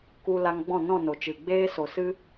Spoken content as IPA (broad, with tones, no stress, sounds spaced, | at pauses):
k u˧ l a˧ ŋ ɡ͡b ɔ̃˦˨ n ɔ̃˦˨ n o˨ t͡ʃ ɨ˨ ɡ͡b eː˦ s o˨ s ɨ˦